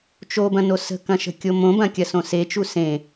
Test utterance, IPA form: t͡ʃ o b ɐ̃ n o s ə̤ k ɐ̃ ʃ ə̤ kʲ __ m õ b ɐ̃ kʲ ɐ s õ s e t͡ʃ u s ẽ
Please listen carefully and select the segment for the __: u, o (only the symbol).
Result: o